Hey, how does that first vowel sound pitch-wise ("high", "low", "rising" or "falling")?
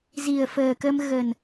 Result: low